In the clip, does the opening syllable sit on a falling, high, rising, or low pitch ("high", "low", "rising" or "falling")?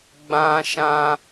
high